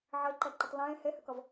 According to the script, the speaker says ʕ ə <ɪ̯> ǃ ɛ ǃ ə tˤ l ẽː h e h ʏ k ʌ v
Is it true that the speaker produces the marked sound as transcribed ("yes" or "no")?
yes